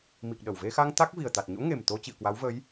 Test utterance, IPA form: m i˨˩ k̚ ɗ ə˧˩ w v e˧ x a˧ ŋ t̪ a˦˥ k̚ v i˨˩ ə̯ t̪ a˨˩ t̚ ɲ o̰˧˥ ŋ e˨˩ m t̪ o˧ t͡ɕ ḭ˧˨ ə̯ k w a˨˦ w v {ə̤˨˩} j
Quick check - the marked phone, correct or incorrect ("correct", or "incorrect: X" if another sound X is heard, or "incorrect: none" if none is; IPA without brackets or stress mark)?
incorrect: ə˨˦